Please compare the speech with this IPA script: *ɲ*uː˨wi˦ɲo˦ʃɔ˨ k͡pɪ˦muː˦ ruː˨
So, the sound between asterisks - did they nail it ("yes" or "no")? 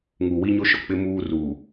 no